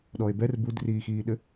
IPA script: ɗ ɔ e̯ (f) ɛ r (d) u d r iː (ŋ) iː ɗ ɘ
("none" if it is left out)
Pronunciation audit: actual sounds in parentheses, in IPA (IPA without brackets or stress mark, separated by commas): b, b, x